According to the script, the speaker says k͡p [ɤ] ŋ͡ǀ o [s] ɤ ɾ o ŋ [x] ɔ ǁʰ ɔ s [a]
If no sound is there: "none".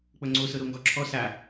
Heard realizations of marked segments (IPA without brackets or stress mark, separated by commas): ɤ, s, ɡ, a